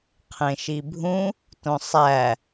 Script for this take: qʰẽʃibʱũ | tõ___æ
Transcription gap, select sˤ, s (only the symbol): sˤ